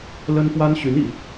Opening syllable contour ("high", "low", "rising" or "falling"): high